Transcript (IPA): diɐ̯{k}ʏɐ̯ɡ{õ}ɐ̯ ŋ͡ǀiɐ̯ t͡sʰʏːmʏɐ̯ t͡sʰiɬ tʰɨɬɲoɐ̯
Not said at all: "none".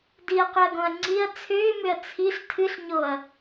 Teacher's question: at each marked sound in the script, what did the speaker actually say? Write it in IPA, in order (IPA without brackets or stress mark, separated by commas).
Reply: q, õ